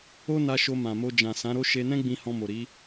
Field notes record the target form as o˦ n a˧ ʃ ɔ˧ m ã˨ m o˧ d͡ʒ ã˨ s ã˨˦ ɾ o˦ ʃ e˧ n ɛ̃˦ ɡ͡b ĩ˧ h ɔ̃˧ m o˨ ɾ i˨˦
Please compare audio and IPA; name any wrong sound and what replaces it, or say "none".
ɔ˧ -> o˧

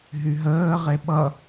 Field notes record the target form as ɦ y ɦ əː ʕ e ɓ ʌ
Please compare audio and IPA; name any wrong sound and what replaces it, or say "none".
ʕ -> ʁ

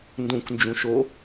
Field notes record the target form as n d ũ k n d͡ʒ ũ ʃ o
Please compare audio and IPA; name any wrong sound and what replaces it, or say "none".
none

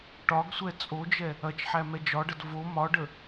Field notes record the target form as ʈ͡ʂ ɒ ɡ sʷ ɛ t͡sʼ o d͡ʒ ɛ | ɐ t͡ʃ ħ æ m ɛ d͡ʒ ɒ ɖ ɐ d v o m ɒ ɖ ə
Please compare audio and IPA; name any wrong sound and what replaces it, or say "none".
ʈ͡ʂ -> ʈ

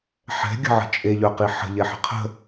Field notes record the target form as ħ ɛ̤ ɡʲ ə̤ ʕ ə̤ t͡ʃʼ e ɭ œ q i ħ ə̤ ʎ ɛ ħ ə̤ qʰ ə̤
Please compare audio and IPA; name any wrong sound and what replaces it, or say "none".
ɭ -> ʎ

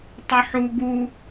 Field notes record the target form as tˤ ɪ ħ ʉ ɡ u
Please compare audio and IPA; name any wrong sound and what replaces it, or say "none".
ʉ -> u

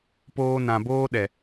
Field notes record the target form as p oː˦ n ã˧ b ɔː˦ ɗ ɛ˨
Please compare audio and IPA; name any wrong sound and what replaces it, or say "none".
ɔː˦ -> oː˦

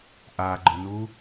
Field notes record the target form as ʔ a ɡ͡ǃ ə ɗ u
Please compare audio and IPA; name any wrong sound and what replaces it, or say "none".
ɗ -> n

